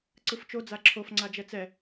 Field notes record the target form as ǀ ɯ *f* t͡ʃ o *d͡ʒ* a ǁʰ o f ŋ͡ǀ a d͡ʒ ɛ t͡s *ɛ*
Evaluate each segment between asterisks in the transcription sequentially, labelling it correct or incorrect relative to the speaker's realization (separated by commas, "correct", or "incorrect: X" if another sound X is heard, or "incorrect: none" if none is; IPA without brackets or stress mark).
correct, incorrect: d͡z, correct